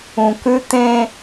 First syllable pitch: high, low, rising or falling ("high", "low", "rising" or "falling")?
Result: low